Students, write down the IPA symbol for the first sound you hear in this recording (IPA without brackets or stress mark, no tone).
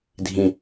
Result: dʱ